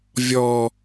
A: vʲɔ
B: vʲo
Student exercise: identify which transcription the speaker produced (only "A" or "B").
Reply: A